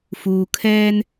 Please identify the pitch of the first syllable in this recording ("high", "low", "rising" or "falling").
low